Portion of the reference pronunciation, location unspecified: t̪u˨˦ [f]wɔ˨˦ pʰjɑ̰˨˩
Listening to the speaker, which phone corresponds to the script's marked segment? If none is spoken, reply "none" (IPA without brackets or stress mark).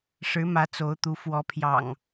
f